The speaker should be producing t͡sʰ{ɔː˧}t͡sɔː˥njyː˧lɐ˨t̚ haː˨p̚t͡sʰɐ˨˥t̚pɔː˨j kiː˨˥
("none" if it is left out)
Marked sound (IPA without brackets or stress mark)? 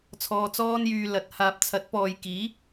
ɔː˧